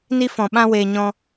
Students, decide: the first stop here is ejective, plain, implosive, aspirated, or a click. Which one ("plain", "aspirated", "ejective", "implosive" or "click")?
implosive